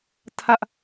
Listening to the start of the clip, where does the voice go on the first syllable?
high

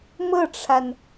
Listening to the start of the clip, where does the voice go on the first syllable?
falling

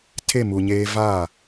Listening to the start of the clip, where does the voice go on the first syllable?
falling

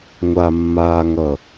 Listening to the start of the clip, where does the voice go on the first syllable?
low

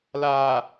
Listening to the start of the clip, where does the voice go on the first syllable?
low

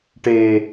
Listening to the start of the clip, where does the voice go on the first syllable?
low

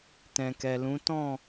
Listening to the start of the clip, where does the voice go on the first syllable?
low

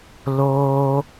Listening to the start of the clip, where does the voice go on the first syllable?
high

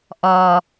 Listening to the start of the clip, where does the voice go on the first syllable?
low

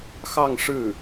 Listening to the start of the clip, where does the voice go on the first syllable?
falling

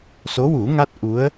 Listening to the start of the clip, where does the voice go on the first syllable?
rising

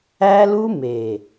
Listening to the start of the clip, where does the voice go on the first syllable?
high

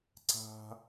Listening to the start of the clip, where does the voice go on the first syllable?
high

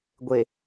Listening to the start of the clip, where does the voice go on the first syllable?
low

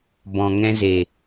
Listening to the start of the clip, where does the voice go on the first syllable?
low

